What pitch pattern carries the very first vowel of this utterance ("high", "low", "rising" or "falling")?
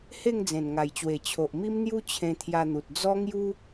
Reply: falling